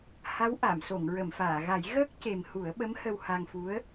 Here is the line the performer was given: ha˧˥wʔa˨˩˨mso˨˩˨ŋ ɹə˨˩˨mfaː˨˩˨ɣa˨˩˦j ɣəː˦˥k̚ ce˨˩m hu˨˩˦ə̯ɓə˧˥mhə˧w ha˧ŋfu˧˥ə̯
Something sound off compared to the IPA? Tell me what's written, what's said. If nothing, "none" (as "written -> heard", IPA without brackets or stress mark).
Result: none